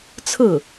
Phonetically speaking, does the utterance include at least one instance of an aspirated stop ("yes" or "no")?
yes